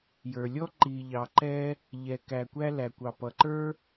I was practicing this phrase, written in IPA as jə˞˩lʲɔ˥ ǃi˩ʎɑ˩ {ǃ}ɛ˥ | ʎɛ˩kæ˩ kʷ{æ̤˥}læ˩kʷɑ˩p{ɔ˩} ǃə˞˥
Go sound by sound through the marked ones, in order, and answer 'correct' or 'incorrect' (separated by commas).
correct, incorrect, incorrect